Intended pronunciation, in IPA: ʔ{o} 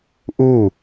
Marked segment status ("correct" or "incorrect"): incorrect